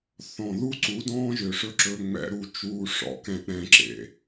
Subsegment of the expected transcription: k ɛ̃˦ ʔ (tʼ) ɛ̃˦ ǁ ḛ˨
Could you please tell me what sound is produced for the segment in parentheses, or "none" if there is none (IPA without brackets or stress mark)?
ɾ